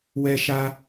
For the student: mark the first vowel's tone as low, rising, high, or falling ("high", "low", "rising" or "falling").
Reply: high